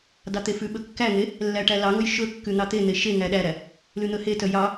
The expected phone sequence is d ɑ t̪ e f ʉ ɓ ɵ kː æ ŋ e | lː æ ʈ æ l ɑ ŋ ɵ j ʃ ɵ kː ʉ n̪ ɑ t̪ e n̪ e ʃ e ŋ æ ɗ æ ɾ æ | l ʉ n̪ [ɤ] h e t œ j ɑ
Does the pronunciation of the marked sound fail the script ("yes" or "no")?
yes